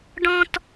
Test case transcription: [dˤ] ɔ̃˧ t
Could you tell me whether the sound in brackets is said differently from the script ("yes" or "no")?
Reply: yes